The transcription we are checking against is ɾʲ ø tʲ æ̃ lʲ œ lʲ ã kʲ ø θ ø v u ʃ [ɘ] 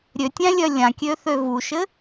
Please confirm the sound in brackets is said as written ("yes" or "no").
yes